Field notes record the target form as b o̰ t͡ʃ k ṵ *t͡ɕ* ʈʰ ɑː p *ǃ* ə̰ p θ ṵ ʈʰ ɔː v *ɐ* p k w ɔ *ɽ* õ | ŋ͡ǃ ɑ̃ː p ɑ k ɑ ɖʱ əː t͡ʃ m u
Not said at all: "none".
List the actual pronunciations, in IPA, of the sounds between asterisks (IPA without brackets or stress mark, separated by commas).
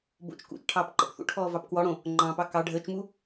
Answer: t͡ʃ, ǃ, ɑ, ɽ